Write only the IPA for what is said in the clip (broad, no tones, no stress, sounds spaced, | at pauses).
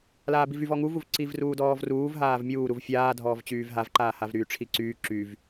l aː b i v y v ɔ ŋ u v u v ǀ i v r uː d ɔː v r uː v ɦ aː v mʲ uː ɾ u v fʲ aː dʱ ɔː v t͡ɕ yː v ɦ a v ǃ aː h a v ɾ yː ʈ͡ʂʰ i ǀ yː ǁ y v